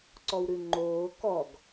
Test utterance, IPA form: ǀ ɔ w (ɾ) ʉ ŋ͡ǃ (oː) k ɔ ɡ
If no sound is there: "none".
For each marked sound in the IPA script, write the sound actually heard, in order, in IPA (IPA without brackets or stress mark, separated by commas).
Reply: ɾ, oː